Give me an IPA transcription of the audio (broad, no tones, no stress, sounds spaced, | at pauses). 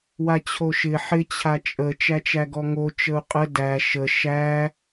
w a t͡ɕʰ o ʃ ɪ ħ ɪ t͡ɕʰ a t͡ʃʼ ə t͡ʃ æ t͡ʃ æ ɡ ɔ ŋ o t͡ʃ ə u̯ qʼ ə d æ ʃ ə ʃ æ